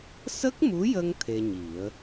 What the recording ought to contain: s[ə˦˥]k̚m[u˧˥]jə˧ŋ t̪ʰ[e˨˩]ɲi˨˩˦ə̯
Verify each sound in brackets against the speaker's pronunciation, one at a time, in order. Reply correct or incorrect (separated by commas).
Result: correct, correct, incorrect